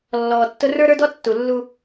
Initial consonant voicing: voiced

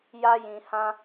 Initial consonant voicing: voiced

